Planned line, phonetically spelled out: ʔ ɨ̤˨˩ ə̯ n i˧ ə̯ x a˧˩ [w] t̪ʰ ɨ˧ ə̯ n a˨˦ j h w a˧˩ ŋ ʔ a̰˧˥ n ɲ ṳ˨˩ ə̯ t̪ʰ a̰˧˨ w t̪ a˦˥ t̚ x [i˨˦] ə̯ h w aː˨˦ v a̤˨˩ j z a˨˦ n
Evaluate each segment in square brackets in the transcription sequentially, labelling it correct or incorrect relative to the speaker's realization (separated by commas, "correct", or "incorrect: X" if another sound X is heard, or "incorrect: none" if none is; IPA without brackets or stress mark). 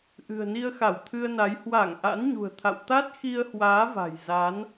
correct, incorrect: i˧